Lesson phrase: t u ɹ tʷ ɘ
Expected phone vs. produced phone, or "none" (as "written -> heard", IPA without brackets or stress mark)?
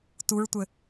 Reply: none